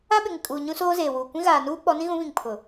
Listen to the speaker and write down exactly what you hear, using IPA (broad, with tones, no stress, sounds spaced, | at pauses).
a˦ ɓ ɪ˨ ŋ ɪ˨ kʼ uː˨ ɲ ũ˦ s oː˦ z eː˨ w uː˨ kʷ ĩ˦ ɣ aː˨ n uː˦ k͡p ɔ˨˦ n ĩ˦ ɣ ũ˨˦ β ĩ˨ ŋ pʰ ʊ˨